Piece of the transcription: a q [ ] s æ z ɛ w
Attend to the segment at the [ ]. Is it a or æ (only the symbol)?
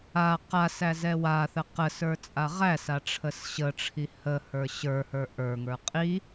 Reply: a